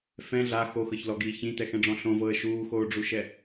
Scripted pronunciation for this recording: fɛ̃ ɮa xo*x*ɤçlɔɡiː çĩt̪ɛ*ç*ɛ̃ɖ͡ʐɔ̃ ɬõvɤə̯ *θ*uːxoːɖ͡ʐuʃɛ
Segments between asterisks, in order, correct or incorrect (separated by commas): correct, incorrect, incorrect